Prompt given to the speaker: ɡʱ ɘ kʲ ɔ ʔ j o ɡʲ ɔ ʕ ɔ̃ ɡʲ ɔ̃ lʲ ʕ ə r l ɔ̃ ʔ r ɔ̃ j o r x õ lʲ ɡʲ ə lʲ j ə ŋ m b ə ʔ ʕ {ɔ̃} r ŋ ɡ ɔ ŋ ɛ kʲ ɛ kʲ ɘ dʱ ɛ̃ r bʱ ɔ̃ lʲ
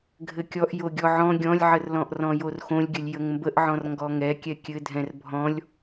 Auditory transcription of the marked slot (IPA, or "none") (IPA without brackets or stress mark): ɔ̃